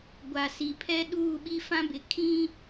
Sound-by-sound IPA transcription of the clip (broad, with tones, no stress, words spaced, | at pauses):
ɡʷa˨si˨pʰɛ˦ ɗuː˦˨ɓi˦fã˦bɪ˨ kʰĩ˦